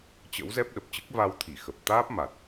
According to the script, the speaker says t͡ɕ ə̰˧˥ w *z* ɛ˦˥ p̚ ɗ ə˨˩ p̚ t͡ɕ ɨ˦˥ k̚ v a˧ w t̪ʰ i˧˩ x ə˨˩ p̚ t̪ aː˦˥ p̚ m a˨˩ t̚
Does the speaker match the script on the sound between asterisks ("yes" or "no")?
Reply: yes